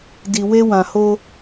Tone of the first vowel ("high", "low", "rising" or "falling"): low